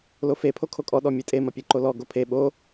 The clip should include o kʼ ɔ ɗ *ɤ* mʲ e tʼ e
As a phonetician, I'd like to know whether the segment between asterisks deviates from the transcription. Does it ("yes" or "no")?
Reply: yes